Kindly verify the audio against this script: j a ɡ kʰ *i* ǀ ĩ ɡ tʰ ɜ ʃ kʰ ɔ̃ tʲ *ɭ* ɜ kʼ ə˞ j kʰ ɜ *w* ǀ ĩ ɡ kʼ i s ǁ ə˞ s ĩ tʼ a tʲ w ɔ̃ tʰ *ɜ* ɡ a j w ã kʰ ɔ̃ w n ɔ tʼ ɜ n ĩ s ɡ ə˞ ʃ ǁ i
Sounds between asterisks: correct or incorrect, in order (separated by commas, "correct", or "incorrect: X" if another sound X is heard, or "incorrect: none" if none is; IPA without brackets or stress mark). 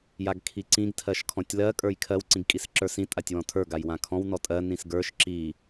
correct, incorrect: l, correct, incorrect: ə˞